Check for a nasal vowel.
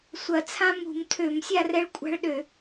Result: present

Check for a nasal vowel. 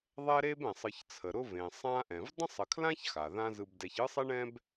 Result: present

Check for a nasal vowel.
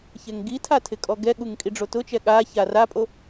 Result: absent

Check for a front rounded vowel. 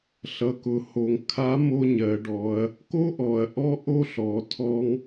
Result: absent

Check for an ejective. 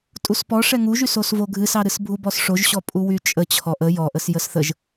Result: present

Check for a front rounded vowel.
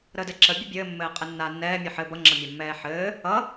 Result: absent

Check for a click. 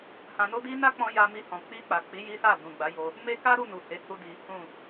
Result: absent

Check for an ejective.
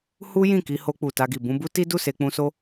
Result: absent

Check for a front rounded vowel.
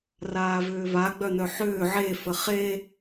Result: present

